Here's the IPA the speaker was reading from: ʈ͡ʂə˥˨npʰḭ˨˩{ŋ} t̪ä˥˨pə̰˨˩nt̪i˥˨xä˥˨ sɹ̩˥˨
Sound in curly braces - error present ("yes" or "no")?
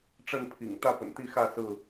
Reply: no